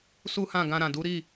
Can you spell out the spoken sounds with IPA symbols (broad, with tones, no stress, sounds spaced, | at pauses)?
s u˦ h ã˦˨ ɡ ã˧ ɾ ã˨ d u˨˦ ɾ i˦˨